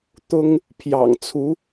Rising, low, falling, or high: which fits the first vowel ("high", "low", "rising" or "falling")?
high